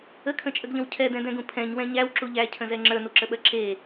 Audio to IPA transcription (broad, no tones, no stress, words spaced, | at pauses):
əkʰə̃t͡ʃʼəɡʎə̃w cʰɛdɛ̃dɛ̃ɡũ pʰɛ̃ɲwɛ̃ ɲæwǁu ʎæcʰə̃zɛ ŋ͡ǁə˞nuǁəɓɜ ǁe